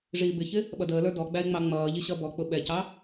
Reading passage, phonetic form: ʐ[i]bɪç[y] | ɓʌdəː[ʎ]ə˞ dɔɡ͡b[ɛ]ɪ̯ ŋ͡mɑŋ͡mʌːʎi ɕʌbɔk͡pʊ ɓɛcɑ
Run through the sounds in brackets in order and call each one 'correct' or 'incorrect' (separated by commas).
incorrect, incorrect, incorrect, incorrect